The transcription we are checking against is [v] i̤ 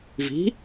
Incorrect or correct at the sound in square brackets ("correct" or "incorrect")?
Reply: correct